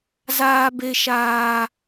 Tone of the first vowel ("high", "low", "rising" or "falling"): high